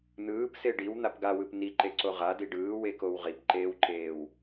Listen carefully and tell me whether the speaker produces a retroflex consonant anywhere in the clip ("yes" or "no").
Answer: yes